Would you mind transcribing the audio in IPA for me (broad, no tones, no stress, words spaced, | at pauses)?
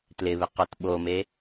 tlɪβɪqot ɓome